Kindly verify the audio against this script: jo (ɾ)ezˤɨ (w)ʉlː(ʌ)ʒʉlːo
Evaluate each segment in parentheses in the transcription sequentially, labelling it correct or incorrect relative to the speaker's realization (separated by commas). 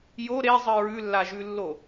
correct, incorrect, incorrect